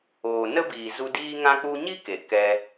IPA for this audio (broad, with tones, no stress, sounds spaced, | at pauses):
oː˨ n ə˦ b iː˨ z u˦ d iː˧ ŋ ã˧ k͡p u˧ ɲ i˦ k e˨ k ɛ˧